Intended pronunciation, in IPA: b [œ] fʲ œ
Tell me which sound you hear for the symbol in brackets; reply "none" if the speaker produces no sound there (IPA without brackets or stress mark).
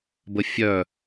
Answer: ə